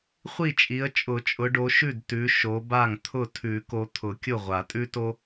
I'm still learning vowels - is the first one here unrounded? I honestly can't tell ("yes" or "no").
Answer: yes